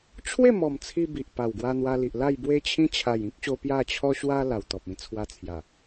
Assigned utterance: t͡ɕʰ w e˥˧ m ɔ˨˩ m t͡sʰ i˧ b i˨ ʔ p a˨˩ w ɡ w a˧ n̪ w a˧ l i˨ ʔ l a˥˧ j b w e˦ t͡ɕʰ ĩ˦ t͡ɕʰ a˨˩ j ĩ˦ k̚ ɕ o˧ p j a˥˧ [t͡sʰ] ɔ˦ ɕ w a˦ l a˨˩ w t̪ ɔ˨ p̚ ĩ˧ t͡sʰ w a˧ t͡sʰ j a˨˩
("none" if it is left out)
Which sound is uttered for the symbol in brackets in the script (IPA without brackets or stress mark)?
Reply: t͡ɕʰ